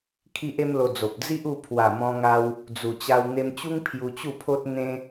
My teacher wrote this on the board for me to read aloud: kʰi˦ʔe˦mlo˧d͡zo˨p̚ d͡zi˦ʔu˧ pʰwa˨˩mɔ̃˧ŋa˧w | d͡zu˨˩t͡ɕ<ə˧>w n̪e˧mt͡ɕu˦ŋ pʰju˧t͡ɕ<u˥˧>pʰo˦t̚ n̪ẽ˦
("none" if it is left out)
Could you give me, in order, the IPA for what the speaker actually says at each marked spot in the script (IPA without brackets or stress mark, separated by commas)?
a˧, u˥˧